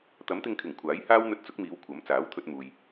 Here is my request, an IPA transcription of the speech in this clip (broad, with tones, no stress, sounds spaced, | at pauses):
t̪ ɐ˨˥ m t̪ ɪ˧ ŋ kʰ ɪ˨˩ ŋ kʷʰ aː˨˥ j h aː˥ w n̪ ɵ˧ t̚ t͡s ʊ˨˥ k̚ m iː˨˧ w kʷʰ ɐ˨˥ m t͡s aː˨˥ w t̪ʰ ɵ˧ t̚ m uː˨ j